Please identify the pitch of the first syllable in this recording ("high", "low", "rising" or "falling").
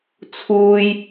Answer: high